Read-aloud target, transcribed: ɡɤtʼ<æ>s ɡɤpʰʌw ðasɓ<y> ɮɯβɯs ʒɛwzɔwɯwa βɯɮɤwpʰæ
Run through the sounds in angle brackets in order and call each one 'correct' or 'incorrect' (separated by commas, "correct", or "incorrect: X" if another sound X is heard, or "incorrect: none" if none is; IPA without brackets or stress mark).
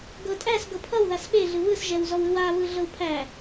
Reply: correct, incorrect: e